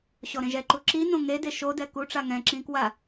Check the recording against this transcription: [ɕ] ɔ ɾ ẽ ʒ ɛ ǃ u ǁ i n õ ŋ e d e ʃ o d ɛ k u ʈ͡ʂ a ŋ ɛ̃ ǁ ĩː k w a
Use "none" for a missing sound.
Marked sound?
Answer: ɕ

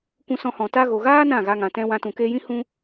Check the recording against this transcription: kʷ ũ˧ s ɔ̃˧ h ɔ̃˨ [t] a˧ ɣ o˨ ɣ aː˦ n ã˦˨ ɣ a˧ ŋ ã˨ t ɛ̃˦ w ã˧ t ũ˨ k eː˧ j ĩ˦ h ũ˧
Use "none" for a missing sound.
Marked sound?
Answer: t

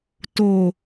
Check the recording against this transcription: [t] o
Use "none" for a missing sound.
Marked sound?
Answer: t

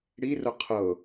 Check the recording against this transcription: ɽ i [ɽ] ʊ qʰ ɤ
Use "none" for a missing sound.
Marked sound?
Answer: r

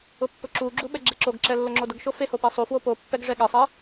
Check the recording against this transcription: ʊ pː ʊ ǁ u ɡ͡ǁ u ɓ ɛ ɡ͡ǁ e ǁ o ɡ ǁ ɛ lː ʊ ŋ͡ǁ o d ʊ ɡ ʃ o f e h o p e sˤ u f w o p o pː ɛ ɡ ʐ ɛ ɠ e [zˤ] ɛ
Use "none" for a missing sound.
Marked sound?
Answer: sˤ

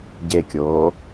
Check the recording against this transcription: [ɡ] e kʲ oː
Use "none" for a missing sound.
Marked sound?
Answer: ɟ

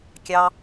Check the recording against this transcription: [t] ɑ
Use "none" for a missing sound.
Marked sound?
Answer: kʲ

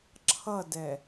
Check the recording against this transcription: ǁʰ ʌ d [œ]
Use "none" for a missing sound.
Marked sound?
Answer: ɛ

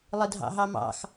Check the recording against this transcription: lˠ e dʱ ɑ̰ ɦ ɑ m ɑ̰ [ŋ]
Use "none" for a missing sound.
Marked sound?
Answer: x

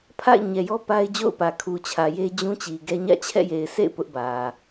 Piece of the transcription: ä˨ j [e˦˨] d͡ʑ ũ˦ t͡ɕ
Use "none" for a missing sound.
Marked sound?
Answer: e˦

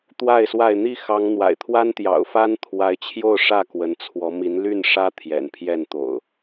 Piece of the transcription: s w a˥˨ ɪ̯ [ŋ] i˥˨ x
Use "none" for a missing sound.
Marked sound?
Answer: n̪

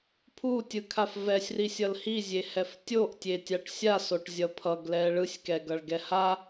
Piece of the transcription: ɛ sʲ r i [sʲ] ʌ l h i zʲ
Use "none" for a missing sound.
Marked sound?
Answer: sʲ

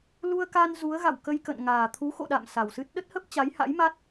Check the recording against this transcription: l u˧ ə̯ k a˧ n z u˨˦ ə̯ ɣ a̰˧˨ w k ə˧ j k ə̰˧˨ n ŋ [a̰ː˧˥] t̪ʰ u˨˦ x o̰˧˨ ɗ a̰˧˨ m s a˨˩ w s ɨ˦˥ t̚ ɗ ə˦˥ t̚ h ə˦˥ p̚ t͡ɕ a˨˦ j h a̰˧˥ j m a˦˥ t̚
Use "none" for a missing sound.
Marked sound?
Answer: aː˨˩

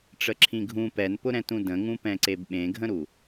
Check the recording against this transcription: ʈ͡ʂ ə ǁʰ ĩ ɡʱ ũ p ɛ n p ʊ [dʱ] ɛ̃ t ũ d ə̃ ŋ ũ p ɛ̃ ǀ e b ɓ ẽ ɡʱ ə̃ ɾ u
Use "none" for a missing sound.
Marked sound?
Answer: ɾ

